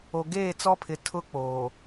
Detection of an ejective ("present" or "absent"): absent